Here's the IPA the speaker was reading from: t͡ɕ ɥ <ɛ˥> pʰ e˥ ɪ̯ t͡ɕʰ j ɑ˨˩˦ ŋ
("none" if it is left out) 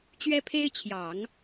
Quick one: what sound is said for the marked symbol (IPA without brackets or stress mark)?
ɛ˥